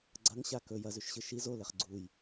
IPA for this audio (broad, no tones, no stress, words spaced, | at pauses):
ɡ͡ǀɐŋɕa kɵ jɐzʉʃɕɨ ʃiz oleχ ɡ͡ǀuj